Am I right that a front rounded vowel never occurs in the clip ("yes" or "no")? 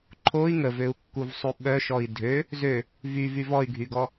no